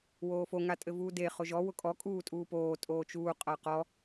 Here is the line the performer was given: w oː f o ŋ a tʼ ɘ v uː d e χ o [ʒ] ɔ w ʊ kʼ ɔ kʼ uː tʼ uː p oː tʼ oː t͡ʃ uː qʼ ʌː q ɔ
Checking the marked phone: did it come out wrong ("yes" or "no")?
no